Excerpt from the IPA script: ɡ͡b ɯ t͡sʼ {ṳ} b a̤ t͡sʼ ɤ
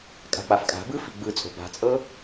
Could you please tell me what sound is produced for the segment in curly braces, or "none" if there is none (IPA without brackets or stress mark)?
o̤